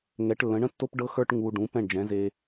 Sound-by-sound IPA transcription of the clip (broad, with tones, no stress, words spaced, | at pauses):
ŋɛ˩˥ʈlːə̃˩˥ɳə̃˥tːo˥p ɖɤ˥xə˞˥ʈ ŋu˧ ɖũ˩˥ pɛ̃˥˩ɳd͡ʒɛ̃˩˥ze˧